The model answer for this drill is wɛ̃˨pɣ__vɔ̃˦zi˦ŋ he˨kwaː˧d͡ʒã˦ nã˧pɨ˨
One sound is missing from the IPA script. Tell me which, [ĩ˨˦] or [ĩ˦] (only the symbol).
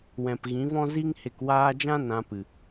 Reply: ĩ˨˦